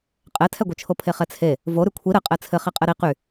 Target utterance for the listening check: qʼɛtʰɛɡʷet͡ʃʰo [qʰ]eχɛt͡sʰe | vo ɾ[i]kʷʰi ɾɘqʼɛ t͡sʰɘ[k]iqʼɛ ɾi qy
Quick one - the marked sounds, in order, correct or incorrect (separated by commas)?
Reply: incorrect, incorrect, incorrect